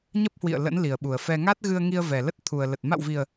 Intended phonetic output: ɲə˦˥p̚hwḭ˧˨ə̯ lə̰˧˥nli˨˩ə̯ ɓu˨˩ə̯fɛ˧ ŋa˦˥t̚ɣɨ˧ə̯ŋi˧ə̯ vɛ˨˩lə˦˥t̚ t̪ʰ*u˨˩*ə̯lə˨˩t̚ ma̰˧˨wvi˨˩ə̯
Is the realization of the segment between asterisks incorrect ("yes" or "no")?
no